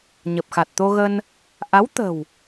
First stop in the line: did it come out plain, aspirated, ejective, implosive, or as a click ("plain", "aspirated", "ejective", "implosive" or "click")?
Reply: plain